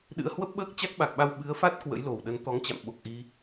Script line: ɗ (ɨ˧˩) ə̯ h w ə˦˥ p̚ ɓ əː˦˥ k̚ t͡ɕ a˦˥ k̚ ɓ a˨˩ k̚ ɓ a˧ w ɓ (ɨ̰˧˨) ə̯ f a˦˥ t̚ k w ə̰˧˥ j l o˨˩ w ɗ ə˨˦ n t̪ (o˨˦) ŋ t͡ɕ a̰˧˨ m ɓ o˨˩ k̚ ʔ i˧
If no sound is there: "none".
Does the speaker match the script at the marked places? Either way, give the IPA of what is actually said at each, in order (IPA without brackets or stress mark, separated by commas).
ɨ̰˧˥, ɨ˨˦, ɔ˨˦